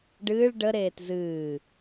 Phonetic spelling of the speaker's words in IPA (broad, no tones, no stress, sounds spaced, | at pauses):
ɖ ɨː ɭ ɖ ə ɾ eː t z ɨː